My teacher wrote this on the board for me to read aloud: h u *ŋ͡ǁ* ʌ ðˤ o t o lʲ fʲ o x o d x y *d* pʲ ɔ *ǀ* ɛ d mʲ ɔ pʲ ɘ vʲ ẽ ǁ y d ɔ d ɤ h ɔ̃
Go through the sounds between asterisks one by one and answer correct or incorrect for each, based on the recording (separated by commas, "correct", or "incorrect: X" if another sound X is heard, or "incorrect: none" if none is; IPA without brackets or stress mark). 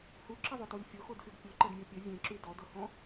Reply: incorrect: ǁ, incorrect: ɡ, incorrect: ǃ